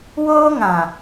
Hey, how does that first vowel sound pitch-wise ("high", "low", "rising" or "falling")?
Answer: high